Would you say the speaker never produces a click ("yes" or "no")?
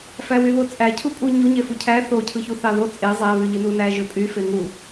yes